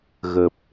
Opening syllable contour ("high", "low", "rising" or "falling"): low